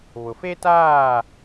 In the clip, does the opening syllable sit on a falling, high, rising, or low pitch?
low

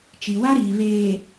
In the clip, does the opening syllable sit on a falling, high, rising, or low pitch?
low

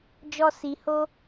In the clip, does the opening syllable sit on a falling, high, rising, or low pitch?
high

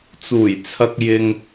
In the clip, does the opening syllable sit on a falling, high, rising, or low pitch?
low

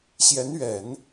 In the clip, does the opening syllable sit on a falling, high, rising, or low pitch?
rising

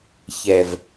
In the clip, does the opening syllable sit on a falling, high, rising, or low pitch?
low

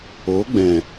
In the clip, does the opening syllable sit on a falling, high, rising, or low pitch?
rising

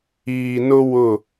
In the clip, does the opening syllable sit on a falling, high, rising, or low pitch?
low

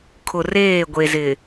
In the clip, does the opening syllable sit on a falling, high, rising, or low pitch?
low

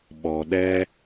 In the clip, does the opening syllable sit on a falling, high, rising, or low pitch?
low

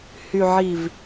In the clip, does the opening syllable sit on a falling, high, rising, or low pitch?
low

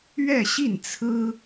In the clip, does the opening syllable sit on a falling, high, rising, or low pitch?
falling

